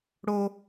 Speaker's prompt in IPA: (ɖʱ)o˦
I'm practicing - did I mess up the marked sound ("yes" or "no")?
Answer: yes